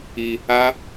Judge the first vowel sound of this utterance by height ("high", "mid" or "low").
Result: high